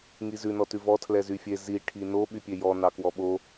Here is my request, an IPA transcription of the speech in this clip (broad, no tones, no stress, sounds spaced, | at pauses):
ŋ i z ʉ n ɔ t ʉ v ɔ tʰ l ɛ z y fʲ e z i ʈʰ i n o ɓ y pʲ e j ɔ n ɑ k w ɔ ɓ o